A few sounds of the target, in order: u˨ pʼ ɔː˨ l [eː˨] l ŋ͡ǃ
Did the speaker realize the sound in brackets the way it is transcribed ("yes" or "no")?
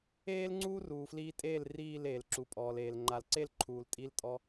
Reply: yes